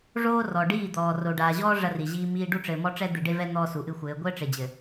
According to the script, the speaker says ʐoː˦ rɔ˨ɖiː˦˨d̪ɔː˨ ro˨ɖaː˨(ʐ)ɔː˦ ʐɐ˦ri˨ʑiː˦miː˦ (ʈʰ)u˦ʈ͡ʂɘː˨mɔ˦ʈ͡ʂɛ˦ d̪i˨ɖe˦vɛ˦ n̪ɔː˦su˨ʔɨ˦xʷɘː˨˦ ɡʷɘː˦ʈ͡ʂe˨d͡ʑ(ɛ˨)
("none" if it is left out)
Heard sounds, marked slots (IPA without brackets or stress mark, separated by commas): ʑ, ɖ, ɘ˨